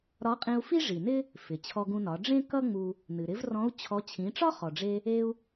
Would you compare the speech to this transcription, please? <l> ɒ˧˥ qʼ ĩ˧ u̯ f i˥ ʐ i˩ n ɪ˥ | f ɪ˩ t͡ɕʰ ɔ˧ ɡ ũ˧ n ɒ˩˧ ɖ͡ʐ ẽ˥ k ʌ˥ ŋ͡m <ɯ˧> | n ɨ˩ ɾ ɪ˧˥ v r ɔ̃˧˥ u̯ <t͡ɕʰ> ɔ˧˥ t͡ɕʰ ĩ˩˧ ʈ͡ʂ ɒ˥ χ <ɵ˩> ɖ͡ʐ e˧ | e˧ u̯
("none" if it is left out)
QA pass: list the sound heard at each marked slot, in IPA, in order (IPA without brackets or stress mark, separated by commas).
ɾ, u˧, t͡ɕʰ, ɔ˩